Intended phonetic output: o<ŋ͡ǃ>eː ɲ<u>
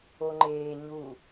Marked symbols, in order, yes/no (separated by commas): yes, yes